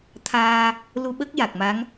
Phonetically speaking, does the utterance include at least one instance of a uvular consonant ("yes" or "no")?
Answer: no